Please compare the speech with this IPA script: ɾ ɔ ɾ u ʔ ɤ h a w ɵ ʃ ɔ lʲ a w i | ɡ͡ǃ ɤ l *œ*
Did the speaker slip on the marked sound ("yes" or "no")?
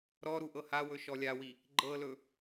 yes